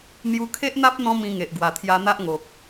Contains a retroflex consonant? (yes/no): no